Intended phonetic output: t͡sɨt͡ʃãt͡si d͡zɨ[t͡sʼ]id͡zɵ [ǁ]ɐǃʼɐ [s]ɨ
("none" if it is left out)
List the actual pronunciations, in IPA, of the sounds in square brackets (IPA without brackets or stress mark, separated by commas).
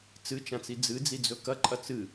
d͡z, k, t͡s